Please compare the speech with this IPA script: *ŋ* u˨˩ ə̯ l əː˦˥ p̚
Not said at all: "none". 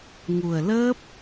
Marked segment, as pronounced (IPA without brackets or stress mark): ŋ